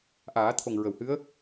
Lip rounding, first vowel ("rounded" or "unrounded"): unrounded